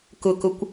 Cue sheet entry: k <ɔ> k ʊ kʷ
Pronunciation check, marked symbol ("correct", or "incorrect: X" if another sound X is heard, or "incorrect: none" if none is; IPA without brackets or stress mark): incorrect: ʊ